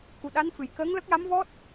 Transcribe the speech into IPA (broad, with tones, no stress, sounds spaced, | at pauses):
k u˨˩ ɗ a˧˥ n f ɨ˨˩˨ j k əː˧˥ ŋ l ə˦˥ k̚ j a˧˥ m v ɔ˦˥ t̚